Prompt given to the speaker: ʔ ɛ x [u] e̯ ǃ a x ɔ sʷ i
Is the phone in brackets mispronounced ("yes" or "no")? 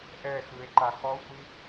yes